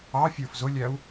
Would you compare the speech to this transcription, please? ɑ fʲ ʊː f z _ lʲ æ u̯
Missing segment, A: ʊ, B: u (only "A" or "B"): A